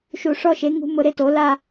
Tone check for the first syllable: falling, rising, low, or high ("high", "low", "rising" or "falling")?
falling